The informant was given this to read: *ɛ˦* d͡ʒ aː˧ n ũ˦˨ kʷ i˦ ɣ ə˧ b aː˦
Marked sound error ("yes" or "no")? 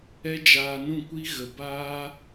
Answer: no